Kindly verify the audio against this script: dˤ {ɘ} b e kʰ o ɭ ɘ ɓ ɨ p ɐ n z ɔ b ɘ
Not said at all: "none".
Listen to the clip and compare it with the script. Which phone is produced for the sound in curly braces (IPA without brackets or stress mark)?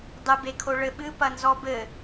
ɘ